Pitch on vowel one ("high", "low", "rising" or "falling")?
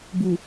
low